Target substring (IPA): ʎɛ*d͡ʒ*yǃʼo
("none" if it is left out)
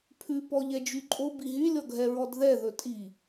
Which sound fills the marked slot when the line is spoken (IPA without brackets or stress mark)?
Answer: d͡ʒ